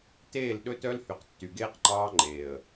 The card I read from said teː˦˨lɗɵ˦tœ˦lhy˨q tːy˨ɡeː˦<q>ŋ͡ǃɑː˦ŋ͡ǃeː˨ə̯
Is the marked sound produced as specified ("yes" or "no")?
yes